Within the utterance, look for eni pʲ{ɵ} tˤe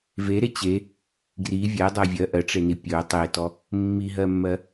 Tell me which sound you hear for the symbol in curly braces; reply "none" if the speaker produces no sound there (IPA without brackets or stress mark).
ɵ